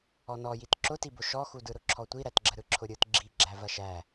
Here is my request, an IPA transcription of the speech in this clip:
ɔ n ɔ j i t ǁ ʊ t i b ʊ ʃ ɔ x u d ɯ ɾ ʊ ǁʰ ɔ tʷ i ɾ æ t ɡ͡ǁ ə ɾ ɯ ǁʰ ʊ ɾʲ ɯ t ɡ͡ǁ i ɡ͡ǁ æ v ɐ ʃ æ

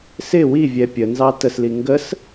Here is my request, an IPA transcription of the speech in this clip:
s ɪ w i vʲ ɛ pʲ ə n z ɑ t ə s l i ŋ ɡ ə s

